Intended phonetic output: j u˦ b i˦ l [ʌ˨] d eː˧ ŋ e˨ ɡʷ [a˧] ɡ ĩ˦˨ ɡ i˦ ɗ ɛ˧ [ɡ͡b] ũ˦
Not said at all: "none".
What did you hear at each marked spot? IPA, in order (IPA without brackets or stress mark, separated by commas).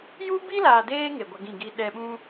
a˨, a˧, ɓ